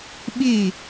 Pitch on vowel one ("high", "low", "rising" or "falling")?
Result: falling